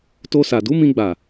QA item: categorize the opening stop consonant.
plain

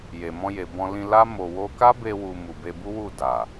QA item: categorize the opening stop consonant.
plain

